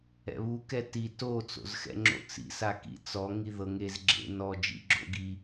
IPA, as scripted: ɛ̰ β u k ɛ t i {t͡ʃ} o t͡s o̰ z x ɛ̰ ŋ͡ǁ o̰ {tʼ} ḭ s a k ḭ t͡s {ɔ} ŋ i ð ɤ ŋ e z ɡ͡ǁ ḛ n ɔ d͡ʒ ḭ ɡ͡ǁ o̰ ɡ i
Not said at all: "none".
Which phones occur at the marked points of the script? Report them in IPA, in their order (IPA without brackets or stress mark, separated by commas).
t, t͡s, ɔ